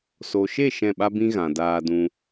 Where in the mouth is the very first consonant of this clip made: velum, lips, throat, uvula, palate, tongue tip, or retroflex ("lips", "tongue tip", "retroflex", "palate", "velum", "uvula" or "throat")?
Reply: tongue tip